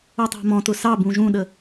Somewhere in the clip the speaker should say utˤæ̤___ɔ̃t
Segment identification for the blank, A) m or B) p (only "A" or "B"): A